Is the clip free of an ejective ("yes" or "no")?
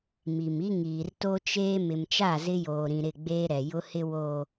yes